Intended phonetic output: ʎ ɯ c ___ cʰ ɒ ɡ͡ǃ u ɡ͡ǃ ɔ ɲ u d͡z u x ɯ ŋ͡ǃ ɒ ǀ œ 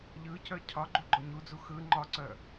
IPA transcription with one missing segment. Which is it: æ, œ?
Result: œ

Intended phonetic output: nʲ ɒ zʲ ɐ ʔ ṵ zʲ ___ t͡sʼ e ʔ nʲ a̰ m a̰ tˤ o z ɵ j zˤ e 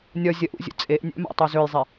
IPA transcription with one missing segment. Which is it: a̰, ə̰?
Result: ə̰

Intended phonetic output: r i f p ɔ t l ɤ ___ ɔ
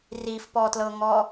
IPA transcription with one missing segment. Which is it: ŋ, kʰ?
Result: ŋ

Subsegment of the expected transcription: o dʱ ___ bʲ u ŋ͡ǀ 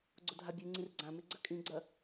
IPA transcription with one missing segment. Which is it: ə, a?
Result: a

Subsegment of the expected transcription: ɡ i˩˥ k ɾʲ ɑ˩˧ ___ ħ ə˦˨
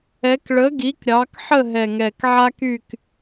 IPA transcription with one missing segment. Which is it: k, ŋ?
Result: k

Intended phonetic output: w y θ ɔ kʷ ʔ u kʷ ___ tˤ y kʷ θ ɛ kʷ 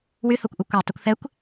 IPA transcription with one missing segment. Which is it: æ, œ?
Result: æ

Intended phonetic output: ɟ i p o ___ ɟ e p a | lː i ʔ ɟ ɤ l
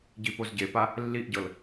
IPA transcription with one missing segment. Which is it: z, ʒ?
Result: z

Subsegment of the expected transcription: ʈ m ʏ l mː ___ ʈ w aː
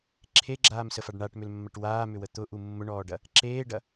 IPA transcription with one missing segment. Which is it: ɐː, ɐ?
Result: ɐ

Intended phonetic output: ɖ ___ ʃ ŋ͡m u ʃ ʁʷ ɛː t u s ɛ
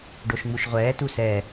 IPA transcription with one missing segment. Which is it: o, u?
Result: o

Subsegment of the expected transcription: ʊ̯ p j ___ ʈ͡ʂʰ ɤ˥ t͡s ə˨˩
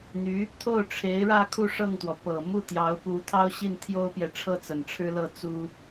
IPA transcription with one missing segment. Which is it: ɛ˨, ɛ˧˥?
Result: ɛ˨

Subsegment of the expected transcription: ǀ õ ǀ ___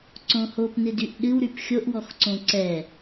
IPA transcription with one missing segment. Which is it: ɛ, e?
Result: ɛ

